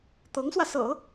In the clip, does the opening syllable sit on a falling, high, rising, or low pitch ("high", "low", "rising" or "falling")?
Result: rising